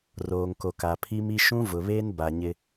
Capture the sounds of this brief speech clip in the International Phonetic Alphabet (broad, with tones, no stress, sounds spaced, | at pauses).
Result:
r oː˨ ŋ k o˨ k a˨ pʰ i˦ m i˦ ʃ ũ˦ v ʊ˨ β eː˦ n b a˨ ɲ ɪ˦